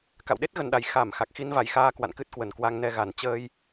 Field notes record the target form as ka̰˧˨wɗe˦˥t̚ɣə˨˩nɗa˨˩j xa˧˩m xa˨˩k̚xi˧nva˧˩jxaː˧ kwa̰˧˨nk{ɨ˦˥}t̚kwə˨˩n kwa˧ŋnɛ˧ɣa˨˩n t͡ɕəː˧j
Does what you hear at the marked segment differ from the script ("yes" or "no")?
no